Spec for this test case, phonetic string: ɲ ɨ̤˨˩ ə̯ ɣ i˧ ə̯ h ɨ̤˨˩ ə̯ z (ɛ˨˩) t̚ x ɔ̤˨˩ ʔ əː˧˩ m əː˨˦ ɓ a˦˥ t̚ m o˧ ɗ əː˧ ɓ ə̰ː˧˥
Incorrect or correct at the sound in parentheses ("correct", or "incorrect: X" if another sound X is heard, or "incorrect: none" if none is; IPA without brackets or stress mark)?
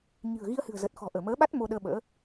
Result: incorrect: ə˨˩